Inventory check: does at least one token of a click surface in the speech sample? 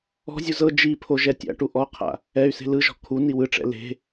no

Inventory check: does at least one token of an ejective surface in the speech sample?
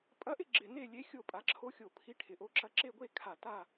yes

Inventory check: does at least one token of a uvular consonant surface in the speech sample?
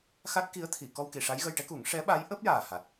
no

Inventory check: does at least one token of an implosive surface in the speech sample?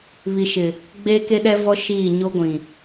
yes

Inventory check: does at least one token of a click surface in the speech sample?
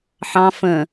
no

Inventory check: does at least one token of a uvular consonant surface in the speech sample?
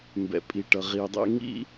yes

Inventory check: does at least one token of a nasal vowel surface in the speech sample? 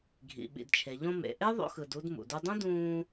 yes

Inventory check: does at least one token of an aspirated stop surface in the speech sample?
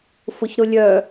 no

